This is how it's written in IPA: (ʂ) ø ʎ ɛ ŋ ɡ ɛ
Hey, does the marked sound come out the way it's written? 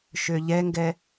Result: no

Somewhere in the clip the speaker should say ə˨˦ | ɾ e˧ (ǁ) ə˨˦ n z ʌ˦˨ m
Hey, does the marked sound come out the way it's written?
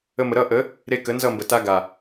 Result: no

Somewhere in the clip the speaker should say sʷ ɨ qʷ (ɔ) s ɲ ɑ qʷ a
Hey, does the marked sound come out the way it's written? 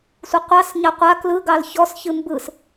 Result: no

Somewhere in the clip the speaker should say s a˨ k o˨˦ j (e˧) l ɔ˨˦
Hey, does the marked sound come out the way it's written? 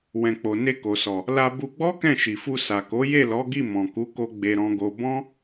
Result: no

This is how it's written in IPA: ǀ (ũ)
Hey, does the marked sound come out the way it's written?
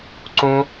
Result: yes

